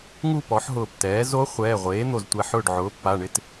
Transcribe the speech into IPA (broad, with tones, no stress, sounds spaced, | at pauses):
ŋ u˥˧ p ɔ˩˥ ħ ɦ ʊː˧˩ p t ɛː˩˥ z o˧˥ χʷ ɛː˩˧˩ ʁʷ eː˩˥ n̪ o˧˩ z tʷ ɛ˧˩ ħ ʊː˥˩ ɖ ʕ ʊː˩˥ pː a˩˧˩ ɳ ɪ˥˧ t